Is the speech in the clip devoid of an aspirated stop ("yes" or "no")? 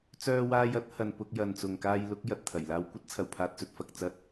no